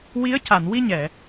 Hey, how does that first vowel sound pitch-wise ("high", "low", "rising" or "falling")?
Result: rising